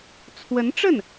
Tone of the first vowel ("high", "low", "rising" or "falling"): rising